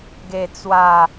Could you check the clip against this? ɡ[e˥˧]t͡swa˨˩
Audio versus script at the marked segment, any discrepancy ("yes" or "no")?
yes